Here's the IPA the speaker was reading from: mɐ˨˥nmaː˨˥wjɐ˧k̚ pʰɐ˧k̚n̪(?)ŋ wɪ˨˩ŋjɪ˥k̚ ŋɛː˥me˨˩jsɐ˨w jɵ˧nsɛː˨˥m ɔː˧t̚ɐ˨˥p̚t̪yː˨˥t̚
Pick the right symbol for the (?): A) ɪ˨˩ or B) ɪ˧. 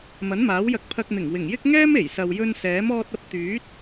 A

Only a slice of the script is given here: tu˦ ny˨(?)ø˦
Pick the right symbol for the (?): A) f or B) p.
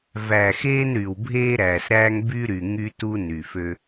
A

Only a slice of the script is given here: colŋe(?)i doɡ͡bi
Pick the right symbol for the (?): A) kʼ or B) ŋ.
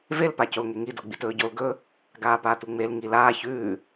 B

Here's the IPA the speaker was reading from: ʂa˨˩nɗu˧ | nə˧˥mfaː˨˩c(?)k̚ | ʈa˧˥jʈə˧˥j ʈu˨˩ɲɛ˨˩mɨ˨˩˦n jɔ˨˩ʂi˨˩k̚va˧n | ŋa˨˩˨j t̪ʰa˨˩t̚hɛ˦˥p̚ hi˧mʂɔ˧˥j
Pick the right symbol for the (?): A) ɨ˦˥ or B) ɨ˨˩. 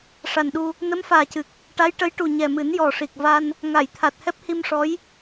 B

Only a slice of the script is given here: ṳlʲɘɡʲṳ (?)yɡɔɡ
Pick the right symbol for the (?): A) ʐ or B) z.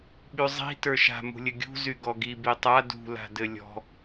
B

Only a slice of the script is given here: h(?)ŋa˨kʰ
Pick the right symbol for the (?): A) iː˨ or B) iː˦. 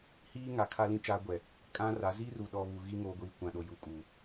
B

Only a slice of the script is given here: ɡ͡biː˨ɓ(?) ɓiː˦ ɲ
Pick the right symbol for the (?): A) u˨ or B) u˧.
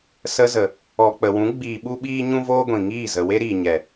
B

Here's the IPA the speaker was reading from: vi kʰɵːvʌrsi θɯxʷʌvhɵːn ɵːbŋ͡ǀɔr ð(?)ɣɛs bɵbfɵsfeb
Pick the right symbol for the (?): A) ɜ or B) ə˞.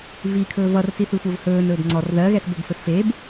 A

